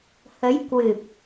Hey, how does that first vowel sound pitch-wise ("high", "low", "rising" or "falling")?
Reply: rising